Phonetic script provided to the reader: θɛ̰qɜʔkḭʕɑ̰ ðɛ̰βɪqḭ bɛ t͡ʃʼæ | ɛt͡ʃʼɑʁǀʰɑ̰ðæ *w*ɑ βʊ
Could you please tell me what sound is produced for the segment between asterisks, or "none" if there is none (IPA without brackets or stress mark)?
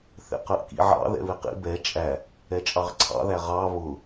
ʁ